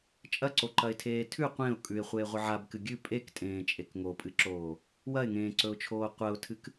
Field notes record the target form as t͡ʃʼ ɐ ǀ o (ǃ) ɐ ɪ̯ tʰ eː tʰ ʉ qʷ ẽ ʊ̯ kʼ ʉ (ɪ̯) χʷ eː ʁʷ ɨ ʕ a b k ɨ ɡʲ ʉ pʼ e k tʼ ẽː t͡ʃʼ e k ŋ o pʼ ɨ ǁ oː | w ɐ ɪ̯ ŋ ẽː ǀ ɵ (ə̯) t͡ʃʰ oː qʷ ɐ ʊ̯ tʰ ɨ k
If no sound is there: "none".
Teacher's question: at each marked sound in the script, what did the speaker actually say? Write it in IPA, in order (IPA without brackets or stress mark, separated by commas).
ǃ, ɪ̯, ʊ̯